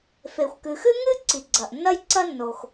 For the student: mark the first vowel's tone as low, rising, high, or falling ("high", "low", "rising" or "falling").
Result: low